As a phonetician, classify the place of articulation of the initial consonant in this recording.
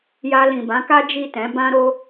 palatal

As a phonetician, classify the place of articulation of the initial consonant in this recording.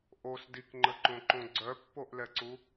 glottal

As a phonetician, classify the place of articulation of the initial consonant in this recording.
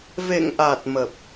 labial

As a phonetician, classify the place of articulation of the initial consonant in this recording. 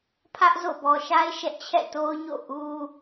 labial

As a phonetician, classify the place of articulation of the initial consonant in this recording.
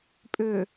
labial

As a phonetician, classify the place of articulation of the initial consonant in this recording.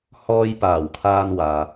glottal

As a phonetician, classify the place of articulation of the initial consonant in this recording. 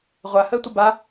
uvular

